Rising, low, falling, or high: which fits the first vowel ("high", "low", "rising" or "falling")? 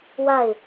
falling